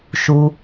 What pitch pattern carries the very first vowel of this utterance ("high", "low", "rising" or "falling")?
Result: low